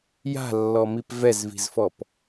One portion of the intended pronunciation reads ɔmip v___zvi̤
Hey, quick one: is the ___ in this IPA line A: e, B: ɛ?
B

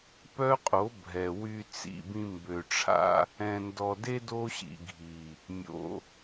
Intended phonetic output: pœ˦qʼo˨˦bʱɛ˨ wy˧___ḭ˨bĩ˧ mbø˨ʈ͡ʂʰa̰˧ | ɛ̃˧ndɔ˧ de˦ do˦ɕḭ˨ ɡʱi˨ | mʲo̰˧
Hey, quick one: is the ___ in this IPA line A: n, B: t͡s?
B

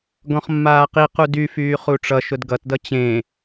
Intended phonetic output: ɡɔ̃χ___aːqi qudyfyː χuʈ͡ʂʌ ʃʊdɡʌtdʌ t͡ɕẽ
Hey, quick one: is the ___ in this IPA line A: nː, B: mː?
B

